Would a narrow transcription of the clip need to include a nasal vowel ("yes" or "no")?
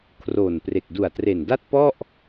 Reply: no